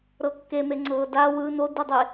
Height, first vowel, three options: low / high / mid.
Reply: mid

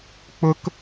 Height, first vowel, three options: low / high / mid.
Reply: high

